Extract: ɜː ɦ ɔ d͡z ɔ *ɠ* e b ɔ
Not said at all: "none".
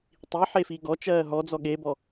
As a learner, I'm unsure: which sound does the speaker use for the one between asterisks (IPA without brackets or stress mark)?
ɠ